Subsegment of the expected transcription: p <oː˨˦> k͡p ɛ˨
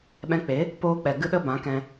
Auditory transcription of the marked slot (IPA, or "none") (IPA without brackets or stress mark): oː˧